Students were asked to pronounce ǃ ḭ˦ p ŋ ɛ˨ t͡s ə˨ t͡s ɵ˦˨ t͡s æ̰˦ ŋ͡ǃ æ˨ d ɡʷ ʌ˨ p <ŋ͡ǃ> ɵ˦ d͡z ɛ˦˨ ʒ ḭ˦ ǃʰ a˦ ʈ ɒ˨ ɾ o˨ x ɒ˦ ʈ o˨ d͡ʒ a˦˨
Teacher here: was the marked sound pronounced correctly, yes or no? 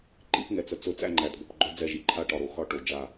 no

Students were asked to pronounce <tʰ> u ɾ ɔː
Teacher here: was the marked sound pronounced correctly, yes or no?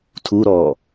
yes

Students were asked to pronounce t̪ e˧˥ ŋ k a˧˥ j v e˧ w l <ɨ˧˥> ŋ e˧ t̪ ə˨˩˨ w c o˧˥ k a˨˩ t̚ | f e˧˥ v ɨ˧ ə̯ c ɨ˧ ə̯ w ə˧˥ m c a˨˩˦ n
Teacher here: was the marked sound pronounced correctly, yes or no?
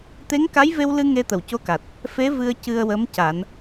no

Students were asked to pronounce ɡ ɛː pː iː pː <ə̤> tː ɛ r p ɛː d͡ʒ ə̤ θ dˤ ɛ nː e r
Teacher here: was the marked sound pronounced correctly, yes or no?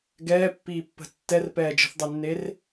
yes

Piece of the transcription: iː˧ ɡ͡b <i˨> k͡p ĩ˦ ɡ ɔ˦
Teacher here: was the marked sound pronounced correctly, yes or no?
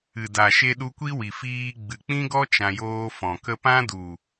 no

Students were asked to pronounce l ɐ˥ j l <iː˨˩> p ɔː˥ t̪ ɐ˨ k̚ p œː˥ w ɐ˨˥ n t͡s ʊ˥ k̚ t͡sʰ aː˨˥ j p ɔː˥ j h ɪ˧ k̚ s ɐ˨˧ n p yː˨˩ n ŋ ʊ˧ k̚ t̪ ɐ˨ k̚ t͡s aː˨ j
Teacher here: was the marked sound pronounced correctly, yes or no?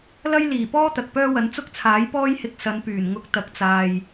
yes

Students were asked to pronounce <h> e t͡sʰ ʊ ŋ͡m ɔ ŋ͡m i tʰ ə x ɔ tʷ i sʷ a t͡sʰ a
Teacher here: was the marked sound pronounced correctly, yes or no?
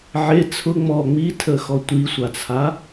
no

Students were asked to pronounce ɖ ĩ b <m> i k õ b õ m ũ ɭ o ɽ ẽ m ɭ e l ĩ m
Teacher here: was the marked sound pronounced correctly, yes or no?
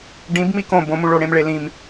yes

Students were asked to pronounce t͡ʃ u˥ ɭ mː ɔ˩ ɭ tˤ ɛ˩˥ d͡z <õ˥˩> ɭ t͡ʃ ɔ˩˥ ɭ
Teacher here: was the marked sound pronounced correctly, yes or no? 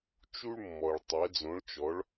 no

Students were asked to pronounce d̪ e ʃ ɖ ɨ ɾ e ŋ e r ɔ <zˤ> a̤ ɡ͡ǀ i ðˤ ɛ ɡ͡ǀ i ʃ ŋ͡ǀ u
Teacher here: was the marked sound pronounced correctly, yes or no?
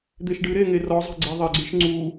yes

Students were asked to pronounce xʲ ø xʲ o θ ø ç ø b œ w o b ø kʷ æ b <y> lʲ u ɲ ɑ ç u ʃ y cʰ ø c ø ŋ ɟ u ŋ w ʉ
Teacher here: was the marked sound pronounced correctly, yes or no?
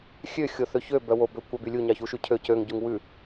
yes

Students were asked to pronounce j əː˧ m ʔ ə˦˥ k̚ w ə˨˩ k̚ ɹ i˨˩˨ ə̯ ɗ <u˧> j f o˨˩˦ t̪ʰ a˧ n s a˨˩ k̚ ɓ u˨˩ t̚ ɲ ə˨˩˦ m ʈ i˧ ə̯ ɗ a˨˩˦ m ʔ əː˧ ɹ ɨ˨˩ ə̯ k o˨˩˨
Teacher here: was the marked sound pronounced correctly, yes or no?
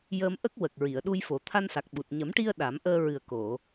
yes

